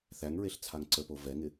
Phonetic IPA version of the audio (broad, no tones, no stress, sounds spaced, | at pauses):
θ æ ŋ ɹ e ɬ t͡sʰ a ŋ ǀ ə p o v ɛ ŋ ɪ